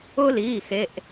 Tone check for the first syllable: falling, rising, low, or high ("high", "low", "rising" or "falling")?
high